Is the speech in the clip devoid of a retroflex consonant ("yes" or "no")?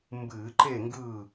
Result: yes